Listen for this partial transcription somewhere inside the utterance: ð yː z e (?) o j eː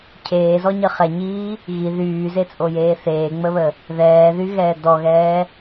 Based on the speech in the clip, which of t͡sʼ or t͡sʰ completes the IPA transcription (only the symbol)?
t͡sʼ